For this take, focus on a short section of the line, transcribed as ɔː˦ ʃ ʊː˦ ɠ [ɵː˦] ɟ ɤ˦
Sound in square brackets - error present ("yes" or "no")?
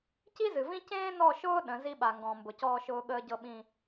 yes